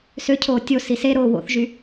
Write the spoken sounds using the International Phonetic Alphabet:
s ø cʰ oː tʲ o s i s e ɾ oː w o̰ θ ʒ y

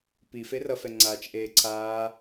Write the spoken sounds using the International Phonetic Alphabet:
p i f e r ʌ f ɛ ŋ͡ǀ aː t͡ʃ ʔ eː ǀʰ aː

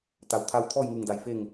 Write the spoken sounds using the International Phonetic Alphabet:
t̪ a˩ w t̪ʰ a˧ w t̪ʰ ɔː˥˨ j ŋ ɯː˧˩ ŋ d a˧˩ j f e˥˨ ŋ

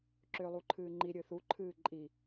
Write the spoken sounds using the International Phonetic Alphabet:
ǁ ʏː lˠ u ǃʰ ɨː ŋ͡ǃ i ɾʲ ɨ θ u ǃʰ ɨː ǃʼ i

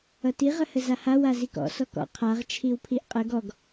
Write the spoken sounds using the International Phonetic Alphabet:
ʌ t i ʁ ə h ə z a h a w a z i k ɔ̰ s ɔ k ɔ̰ qʰ a ʁ t͡ʃʰ i w pʰ i ʔ qʼ ə ɡ ɔ ɡ

